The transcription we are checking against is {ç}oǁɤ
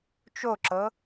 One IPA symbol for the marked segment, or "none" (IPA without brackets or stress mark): t͡ʃ